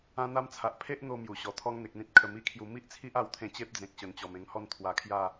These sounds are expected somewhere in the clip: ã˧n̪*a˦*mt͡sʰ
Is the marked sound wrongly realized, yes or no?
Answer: yes